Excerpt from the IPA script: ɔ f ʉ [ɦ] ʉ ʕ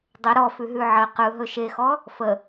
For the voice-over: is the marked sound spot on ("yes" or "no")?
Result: yes